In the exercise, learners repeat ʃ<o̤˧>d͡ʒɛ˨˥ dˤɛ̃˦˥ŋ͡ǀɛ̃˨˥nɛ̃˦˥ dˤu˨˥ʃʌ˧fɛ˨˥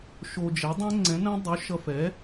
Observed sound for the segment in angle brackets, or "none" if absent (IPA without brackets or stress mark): o˧